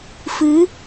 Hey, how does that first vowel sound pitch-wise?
rising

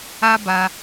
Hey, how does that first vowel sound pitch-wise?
high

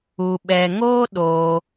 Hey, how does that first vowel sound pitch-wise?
low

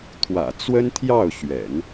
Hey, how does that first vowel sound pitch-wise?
low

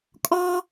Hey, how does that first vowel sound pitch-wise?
high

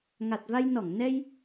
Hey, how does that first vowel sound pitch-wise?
low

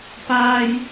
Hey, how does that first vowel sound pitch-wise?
high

